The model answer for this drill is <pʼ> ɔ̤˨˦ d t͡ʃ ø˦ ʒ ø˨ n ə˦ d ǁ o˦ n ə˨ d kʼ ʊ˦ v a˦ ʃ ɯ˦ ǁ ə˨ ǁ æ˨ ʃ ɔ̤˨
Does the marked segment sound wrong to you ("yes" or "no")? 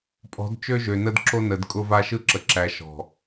no